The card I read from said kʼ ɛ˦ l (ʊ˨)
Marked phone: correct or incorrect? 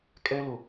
correct